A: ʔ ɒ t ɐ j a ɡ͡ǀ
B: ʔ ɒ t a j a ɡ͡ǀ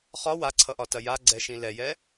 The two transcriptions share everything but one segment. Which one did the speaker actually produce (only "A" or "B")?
A